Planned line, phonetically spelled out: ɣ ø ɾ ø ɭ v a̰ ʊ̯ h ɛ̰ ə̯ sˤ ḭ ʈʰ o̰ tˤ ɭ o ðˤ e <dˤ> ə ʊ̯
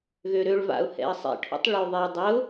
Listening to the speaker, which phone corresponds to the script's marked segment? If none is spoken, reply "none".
dˤ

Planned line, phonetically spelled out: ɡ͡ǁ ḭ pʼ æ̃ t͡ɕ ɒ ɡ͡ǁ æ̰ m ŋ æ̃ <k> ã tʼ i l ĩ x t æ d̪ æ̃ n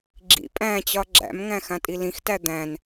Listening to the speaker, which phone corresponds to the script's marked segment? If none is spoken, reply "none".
x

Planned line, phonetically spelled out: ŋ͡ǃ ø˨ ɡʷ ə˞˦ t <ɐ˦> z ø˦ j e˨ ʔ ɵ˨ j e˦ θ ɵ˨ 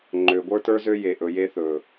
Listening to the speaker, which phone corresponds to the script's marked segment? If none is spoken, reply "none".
ə˞˦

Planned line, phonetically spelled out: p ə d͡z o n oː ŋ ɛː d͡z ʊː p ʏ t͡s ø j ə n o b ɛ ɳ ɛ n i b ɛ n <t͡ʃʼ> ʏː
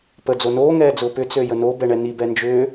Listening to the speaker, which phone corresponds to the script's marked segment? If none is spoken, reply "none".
d͡ʒ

